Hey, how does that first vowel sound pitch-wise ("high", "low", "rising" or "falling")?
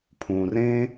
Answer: low